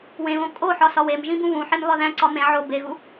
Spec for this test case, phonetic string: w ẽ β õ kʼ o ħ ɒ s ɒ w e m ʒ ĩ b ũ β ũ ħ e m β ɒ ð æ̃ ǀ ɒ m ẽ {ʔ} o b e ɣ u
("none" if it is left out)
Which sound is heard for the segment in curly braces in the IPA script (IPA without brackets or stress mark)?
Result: ʕ